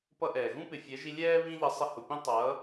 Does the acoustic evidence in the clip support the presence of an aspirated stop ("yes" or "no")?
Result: no